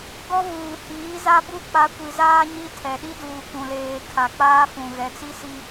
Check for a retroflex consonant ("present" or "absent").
absent